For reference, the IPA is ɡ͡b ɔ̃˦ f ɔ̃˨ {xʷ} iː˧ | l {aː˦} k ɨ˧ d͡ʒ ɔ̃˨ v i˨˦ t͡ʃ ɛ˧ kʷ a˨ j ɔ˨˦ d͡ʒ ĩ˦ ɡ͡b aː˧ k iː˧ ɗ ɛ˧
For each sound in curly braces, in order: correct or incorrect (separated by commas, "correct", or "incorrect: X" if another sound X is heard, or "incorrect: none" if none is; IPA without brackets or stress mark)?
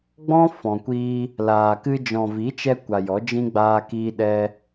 incorrect: kʷ, incorrect: aː˨